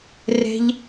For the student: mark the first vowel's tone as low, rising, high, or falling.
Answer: low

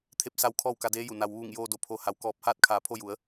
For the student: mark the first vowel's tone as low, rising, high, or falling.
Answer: rising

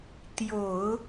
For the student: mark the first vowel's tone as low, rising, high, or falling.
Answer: low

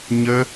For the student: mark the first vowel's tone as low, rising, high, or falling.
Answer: high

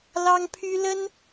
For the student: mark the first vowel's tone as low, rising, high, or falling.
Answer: high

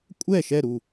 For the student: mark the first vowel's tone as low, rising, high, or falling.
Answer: falling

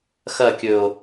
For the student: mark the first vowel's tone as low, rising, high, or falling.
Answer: falling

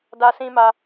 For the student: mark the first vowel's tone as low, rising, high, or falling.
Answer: high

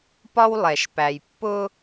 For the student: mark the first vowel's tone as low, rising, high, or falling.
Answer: high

